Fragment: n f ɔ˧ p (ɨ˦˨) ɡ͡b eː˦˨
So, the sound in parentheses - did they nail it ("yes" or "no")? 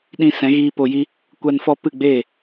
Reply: yes